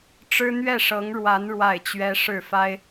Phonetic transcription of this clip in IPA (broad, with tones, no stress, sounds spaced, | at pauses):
ʈ͡ʂ ɻ̩˥ n̪ ɥ ɛ˥˩ ʂ ɤ˧˥ ŋ ɻ w a˧˥ n ɻ w a˥˩ ɪ̯ t͡ɕ ɥ ɛ˥ ʂ ɻ̩˥˩ f a˥ ɪ̯